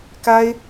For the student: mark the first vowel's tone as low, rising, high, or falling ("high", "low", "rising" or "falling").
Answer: high